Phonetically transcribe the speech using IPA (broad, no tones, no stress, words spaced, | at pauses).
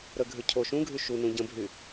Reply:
ɾəɡʱʏ cʰo ʃũɡʱy ʃunũ ɟə̃bʱy